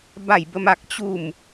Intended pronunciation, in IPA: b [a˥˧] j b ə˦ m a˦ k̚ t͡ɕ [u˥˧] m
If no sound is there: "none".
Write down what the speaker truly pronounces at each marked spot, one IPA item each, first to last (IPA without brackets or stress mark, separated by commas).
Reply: a˥˧, u˥˧